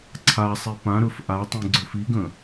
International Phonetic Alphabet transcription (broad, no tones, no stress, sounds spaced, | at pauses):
ǀʰ a sˤ i p ã ɾ ɵ f ʔ a tˤ ĩ ɡ͡ǀ ɵ f i ɡ ə̃